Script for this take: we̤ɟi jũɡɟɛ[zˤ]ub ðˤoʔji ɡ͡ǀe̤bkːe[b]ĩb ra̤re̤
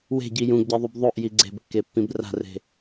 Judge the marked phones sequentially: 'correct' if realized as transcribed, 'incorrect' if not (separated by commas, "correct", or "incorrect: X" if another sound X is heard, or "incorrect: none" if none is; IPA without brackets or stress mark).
incorrect: ðˤ, incorrect: pː